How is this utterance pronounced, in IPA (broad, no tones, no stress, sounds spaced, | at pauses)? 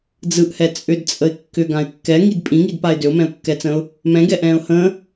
d͡z ɯ ʔ h ɛ t͡sʼ ʏ d t͡sʼ ə ɪ̯ kː ʏ ɡ ã ɪ̯ kː ɛ ŋ i d pʼ ĩ ŋ i d p a ɪ̯ d ʏ ʊ̯ m ɛ̃ ʊ̯ kː ɛ t͡s ə̃ː ʊ̯ | m ɛ̃ ɡ ɛ ʔ ɛ̃ː ʊ̯ h ə̃ː